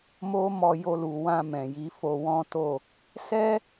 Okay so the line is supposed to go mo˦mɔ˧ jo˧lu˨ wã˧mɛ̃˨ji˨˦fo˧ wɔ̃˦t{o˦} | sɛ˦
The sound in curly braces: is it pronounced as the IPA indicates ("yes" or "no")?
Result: no